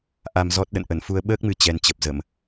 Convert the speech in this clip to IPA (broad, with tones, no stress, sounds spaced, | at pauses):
ʔ a˧ m z ɔ˦˥ t̚ ɗ ə̰˧˨ n ʔ ə˧˩ n f u˧ ə̯ ɓ əː˦˥ k̚ m ɨ˨˦ t͡ɕ ɛ˧ n t͡ɕ ə˨˩ p̚ z ə˧˩˨ m